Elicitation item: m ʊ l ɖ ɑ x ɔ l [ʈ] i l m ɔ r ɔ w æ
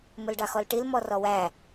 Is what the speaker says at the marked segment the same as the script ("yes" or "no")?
yes